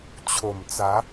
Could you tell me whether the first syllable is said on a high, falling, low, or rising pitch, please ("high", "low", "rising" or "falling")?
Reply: low